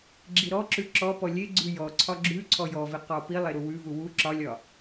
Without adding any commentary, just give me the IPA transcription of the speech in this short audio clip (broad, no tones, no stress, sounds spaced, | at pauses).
ɡ͡ǁ i ɾ ɔ ǁ ʉ ǁ ɔ p ɔ lʲ e ɡ͡ǀ ʉ j ɔ ǀʰ ɒ ɡ͡ǁ ʉ ǀʰ ɔ j ɔ v i q ɒ p i lˠ e ɾ u w ʉ v u w u ǁ ɒ lʲ ɒ